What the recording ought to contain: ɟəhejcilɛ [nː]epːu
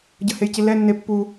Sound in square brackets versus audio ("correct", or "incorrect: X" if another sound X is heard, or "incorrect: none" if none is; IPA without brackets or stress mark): correct